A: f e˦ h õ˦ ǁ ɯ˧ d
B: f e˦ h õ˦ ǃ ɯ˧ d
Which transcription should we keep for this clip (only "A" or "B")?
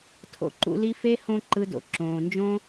B